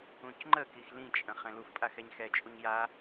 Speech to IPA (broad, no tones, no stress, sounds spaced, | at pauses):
ũ c ŋ͡ǃ ə k i x l ĩ t͡ʃʼ ə̃ χ ɛ̃ l u f pʼ a x ɛ ɲ x ɛ t͡ʃʼ u ɲ j a